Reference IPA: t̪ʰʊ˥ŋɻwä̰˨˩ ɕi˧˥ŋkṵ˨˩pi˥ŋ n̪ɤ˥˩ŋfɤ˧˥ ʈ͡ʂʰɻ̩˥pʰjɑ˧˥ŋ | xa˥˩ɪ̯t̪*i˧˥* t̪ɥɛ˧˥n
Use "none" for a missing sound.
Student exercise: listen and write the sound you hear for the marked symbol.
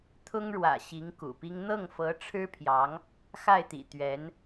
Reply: ḭ˨˩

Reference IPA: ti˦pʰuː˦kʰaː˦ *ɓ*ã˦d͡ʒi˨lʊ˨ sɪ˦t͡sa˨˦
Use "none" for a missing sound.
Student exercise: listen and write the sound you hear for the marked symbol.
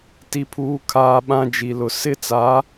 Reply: ɓ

